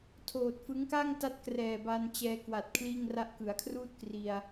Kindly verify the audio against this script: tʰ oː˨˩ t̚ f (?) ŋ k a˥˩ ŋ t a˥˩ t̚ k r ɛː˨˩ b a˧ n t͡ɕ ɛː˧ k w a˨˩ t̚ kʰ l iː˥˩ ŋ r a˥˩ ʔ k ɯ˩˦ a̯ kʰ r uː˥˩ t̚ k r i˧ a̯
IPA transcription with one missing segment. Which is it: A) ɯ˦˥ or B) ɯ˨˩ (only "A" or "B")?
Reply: A